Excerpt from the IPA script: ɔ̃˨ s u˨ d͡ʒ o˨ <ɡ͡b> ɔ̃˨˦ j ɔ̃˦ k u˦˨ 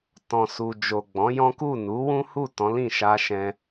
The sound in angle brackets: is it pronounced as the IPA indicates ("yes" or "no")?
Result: yes